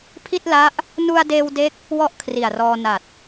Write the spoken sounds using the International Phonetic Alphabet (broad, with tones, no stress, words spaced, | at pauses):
pʰi˥˩t̚la˦˥ʔ | nu˧a̯deː˧w de˦˥k̚ | wɔ˥˩ʔkʰri˨˩a̯rɔː˧ na˨˩t̚